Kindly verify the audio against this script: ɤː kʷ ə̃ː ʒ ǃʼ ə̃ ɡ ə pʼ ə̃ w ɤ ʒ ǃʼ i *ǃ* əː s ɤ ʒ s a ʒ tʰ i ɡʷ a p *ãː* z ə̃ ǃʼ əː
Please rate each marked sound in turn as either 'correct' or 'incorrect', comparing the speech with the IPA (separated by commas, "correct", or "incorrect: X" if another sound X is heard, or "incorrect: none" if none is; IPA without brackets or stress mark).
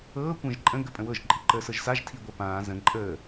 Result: correct, correct